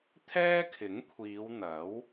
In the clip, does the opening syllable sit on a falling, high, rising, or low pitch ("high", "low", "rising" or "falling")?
high